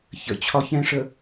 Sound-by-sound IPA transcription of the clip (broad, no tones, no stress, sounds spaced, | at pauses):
ç ə̰ t͡ɕʰ ɒ ç ɛ̃ ʂ ə